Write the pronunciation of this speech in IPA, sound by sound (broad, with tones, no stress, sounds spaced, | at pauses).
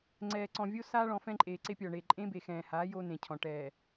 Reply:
ŋ͡ǀ ɛː˨ ǀ ɔ̃˨ vʲ o˦ s aː˦ ɭ ɔ̃˨ f ɛ̃˦ ǃʼ eː˨ ǀ e˦ pʲ ɔː˨ ɳ eː˨ ǃʼ ẽ˦ b e˨ x ɛ̃ː˨ h aː˨˦ j o˦ n ẽ˨ cʰ ɔ̃˨ ʈ ɛː˨